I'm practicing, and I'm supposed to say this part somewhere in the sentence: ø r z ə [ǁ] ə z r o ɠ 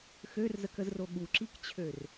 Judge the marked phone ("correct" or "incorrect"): incorrect